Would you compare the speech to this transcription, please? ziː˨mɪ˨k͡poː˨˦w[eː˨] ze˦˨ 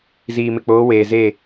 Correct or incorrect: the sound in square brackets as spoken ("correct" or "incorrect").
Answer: correct